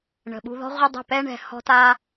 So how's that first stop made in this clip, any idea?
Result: implosive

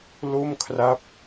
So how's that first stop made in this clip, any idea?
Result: aspirated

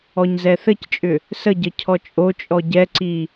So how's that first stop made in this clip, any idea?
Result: plain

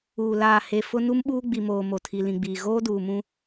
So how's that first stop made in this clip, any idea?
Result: implosive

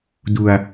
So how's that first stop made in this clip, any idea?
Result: plain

